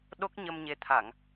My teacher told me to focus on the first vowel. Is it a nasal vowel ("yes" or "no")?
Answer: no